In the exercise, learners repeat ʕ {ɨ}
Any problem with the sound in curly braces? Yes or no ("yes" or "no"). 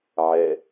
yes